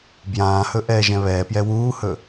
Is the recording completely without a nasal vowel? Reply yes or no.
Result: no